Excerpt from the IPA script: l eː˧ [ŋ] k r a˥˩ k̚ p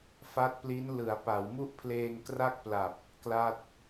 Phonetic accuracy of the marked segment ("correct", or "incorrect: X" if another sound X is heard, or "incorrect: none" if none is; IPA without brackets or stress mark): correct